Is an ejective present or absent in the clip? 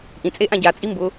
present